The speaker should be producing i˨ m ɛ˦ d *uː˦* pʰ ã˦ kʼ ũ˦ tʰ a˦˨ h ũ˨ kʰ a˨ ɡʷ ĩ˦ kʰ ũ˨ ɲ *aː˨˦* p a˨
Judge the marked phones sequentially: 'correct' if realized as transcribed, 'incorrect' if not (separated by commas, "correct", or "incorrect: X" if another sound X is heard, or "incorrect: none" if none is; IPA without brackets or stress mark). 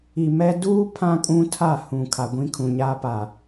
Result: correct, incorrect: aː˦